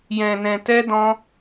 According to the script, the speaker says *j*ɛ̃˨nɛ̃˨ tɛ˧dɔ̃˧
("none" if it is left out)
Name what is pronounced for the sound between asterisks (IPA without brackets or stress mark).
j